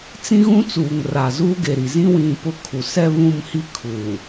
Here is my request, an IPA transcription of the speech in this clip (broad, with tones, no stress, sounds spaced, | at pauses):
t͡s ĩ˦ ɣ ũ˦ t͡s uː˨ ŋ r a˨ z uː˦ ɡ e˨ ɾ i˨ z ĩ˦ w ĩ˦˨ p ʊ˦ kʰ u˨ s ɛ˦ β ũ˦˨ m h i˦ kʰ uː˨